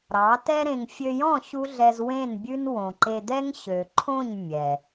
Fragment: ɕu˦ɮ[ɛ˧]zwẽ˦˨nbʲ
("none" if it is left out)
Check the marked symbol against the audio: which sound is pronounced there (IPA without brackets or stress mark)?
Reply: ɛ˧